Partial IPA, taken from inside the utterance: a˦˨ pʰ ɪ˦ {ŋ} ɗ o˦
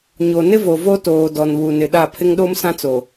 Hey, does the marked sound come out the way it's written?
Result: yes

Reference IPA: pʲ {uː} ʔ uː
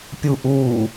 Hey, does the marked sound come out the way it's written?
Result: no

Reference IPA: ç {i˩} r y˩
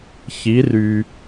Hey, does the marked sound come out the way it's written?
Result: no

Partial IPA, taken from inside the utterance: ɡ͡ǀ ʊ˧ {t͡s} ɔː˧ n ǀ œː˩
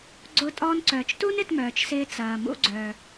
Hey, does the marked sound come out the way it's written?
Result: no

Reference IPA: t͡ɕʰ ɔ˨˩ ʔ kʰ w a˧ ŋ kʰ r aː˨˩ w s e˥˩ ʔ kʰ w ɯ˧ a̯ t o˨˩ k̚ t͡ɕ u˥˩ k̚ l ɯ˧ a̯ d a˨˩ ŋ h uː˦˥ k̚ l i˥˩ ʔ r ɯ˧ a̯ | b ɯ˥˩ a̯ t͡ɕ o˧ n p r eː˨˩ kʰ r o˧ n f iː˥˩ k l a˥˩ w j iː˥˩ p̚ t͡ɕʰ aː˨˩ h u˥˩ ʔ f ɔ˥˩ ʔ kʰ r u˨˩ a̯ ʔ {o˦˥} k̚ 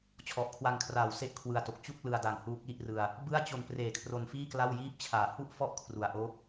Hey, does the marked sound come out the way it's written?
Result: no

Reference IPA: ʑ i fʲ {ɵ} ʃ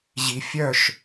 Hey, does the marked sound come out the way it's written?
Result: no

